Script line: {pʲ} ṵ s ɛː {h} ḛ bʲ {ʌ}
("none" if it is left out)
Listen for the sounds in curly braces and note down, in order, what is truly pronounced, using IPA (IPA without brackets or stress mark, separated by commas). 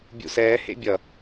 bʲ, h, ʌ